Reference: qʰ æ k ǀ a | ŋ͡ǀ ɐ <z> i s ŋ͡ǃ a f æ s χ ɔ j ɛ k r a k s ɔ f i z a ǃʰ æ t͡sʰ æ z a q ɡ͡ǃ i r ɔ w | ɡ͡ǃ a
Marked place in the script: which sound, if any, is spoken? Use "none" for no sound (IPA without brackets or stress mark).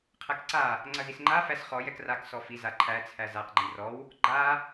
z